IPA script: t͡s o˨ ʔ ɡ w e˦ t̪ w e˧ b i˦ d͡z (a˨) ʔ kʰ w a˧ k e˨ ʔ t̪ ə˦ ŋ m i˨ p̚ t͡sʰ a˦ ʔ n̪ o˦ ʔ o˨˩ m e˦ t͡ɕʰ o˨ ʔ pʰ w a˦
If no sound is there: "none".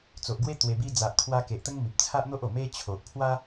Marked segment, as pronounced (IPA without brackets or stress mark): a˨